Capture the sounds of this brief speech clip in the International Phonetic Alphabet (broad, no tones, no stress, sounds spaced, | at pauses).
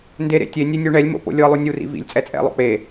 n d e ɾ ḛ tʲ e nʲ e nʲ u ɳ ɛ lʲ m o̰ p o̰ lʲ ɤ lˠ u nʲ u r ḭ v ḭ lʲ t͡sʼ ɛ t͡sʼ ɛ̰ lˠ o̰ k͡p e